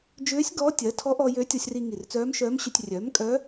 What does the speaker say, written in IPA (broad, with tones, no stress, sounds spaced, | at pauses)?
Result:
d͡ʒ ʏː˧˥ sʲ ɡ ɔː˧˥ tʲ ɜ˩˥ tʰ ɔ˧˥ ʔ ɔ˧ j ø˧˥ tʲ ɔ˧ sʲ r i˧ ŋ i˨˩ r t͡s œː˧˥ m ʃ œː˧˥ m ɕ ø˧ tʲ rʲ œː˩˥ m kʼ œ˧˥